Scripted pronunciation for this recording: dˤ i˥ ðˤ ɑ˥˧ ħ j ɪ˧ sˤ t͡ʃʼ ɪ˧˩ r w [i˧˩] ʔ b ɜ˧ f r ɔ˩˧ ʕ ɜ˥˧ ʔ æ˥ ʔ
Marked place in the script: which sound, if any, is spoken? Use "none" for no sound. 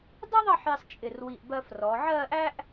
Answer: i˧˩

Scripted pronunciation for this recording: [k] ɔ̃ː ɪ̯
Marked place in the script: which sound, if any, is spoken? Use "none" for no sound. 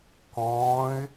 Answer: k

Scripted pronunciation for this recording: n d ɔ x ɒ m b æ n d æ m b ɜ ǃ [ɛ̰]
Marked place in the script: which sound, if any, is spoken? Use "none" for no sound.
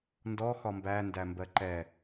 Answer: ɛ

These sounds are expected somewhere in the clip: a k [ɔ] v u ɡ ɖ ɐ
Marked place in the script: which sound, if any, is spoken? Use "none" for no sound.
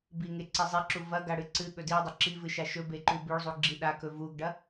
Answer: ɵ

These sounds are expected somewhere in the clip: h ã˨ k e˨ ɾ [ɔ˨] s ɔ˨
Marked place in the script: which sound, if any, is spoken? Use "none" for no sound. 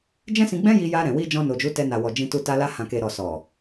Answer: ɔ˨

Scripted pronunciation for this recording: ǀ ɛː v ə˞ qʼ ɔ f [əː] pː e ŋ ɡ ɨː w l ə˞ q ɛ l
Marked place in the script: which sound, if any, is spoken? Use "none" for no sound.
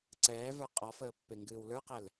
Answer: əː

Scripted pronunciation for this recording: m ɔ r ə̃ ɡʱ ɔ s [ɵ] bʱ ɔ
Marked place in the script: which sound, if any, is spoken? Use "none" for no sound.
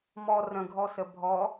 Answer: ə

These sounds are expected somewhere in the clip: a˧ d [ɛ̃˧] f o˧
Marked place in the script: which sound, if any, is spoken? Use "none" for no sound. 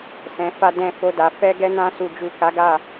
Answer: ɛ̃˧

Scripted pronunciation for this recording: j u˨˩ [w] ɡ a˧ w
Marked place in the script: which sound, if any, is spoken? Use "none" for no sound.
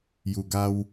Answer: none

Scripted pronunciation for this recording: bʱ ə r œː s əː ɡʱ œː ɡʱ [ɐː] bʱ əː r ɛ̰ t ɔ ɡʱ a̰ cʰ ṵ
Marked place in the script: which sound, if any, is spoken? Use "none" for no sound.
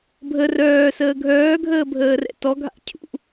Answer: əː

